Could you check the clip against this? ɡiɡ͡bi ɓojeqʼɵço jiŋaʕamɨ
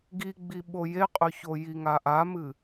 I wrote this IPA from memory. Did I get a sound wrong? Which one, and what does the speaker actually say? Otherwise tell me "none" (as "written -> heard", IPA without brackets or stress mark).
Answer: ʕ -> ʔ